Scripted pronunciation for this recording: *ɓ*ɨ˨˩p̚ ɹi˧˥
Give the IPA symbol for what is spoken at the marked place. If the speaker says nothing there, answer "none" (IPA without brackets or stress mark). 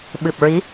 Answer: ɓ